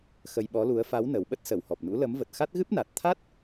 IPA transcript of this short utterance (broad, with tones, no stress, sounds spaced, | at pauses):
x ə˧ j ɓ ɔ˨˦ l u˨˦ ə̯ f a˨˦ w n ə˨˩ w ɓ ə˦˥ t̚ s ə˧˩ w h ɔ˨˩ p̚ n ṵ˧˥ l ə˨˦ m v ə˨˩ t̚ x a˦˥ t̚ ɣ ɨ˦˥ p̚ n a˨˩ t̚ t̪ʰ a˦˥ t̚